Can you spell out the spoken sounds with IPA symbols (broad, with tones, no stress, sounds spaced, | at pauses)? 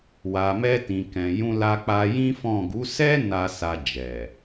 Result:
w a˨ m ɛ˧ t ĩ˨ k ɛ̃˨ j ũ˧ l a˧ k͡p a˧ j ĩ˦ f ɔ̃˦˨ ɡ u˨˦ s ɛ˦ n a˧ s a˧ d͡ʒ ɛ˨